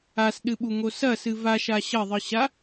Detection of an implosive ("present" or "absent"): present